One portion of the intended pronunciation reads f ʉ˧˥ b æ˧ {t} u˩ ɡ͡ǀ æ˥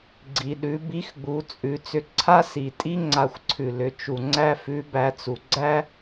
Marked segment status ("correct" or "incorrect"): incorrect